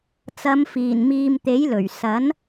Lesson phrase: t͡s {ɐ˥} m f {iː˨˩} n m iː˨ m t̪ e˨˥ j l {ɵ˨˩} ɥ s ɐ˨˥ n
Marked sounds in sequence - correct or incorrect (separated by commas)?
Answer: incorrect, correct, correct